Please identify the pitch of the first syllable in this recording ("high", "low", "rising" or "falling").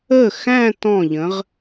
falling